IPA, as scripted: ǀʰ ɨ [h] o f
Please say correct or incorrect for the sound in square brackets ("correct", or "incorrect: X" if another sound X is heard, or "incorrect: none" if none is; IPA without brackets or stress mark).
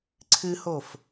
correct